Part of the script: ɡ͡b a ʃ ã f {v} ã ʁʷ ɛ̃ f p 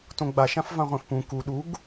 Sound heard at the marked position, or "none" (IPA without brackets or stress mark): v